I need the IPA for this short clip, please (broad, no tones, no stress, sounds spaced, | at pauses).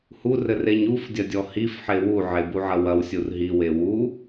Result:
h u r ɘ r e ɲ u f dʲ ɐ dʲ ɔ h i f ħ e w u ʕ e b u ʕ ɐ w ɐ w sʲ u r ɦ i w e w u